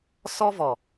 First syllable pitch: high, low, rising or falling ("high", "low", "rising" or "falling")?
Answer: high